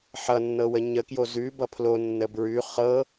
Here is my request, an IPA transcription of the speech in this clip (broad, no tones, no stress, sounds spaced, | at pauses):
ħ ʌ nː ɤ w ə ɲ ə k j o z ʉ b ʌ pʰ l o nː ə b ɹ ʉ χ ɤ